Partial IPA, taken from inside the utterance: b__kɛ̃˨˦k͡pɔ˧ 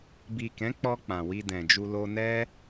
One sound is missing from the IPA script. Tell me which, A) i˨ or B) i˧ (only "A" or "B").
A